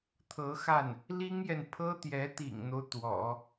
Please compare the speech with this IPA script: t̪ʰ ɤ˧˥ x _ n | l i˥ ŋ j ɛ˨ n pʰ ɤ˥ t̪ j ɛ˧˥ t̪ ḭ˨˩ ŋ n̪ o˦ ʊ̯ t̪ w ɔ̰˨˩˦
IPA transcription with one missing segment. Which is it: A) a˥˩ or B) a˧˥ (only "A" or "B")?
A